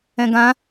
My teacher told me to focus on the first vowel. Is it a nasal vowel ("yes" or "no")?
yes